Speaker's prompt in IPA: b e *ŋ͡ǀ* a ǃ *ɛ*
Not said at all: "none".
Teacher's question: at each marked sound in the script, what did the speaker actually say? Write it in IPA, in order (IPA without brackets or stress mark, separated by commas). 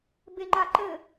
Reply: ŋ͡ǃ, ɘ